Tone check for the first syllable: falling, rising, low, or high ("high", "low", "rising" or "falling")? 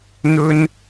high